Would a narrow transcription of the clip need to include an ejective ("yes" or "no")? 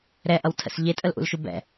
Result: yes